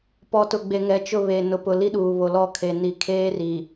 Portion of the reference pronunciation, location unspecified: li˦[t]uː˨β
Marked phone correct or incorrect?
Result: incorrect